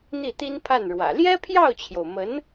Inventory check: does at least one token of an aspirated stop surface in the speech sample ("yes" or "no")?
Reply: yes